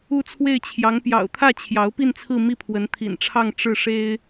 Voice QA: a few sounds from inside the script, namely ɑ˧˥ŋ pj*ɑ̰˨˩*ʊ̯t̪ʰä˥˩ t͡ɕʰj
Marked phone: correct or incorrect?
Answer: correct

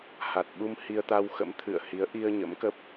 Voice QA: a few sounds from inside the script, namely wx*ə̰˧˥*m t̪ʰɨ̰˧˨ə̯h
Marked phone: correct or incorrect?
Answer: correct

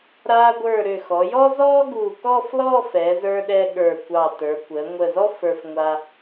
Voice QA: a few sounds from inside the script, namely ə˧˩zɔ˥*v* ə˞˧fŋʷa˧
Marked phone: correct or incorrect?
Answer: incorrect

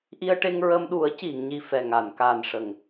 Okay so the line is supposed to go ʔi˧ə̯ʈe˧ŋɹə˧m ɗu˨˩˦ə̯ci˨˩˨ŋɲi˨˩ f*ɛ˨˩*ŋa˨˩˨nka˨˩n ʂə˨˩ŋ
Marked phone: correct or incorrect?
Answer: correct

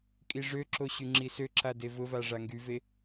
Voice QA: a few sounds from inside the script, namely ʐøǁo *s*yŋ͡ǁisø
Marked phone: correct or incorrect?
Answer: incorrect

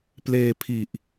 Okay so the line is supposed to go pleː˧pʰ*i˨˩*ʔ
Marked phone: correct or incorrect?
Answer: correct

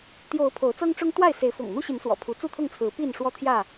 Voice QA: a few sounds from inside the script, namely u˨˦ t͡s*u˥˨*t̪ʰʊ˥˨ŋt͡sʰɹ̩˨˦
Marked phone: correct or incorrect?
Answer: correct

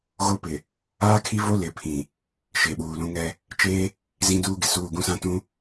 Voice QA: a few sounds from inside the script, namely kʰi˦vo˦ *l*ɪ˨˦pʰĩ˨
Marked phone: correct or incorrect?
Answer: correct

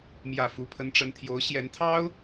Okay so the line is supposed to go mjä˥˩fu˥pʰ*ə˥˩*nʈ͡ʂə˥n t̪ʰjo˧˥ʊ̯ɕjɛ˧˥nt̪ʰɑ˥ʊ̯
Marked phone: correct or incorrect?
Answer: incorrect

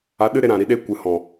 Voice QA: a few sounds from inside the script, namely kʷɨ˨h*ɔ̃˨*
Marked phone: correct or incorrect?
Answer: correct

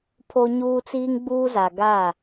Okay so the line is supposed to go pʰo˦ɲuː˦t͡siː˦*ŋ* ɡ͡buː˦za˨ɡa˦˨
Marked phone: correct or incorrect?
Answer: correct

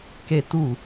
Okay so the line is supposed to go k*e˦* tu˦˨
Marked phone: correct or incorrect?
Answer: correct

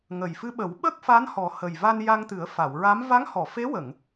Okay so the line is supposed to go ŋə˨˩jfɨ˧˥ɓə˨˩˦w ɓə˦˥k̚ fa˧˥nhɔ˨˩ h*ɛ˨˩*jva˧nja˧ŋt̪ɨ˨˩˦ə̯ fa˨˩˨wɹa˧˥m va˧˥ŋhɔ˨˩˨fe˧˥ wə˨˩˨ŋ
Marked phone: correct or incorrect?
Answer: incorrect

